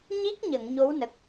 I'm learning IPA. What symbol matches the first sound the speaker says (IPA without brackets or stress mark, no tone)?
ɲ